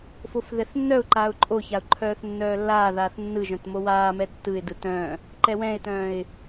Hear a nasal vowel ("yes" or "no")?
yes